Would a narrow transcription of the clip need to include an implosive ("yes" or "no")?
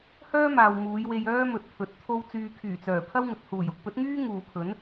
no